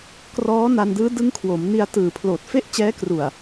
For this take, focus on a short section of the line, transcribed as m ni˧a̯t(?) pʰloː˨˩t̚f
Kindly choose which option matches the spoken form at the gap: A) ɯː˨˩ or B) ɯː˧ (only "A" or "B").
A